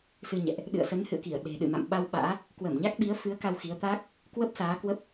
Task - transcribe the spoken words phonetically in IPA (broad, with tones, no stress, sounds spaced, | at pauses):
s ɨ˧ ɲ ɛ̰˧˨ ʔ | ɗ ɨ̰˧˨ ə̯ s ə˨˦ n h ɨ̰˧˨ ə̯ k i˧˩ ə̯ ɗ e̤˨˩ ɗ ɨ̰˧˨ m a̰˧˨ m ɓ a˧ w ɓ a̰ː˧˥ | k w ə˧˩ m ɲ a˦˥ k̚ ɓ i˨˦ ə̯ f ɨ˨˦ ə̯ k a˧ w x i˨˦ ə̯ t̪ a˦˥ k̚ | k w ə˦˥ p̚ s aː˨˦ k w ə˦˥ p̚